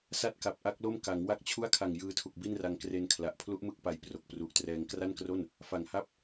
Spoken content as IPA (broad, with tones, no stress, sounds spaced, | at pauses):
s a˥˩ t̚ k a˨˩ p̚ ʔ a˦˥ k̚ l o˥˩ m k a˩˦ ŋ w a˥˩ k̚ t͡ɕʰ u˥˩ a̯ kʰ a˨˩ ŋ j ɯː˧ tʰ u˨˩ k̚ b i˥˩ n r a˧ ŋ k r e˧ n kʰ l a˨˩ ʔ pʰ l u˦˥ ʔ m ɯ˦˥ k̚ p a˨˩ j p r o˨˩ k̚ p r u˨˩ ʔ t r ɛː˧ ŋ k r a˥˩ n k r o˥˩ n | f a˨˩ ŋ h a˥˩ p̚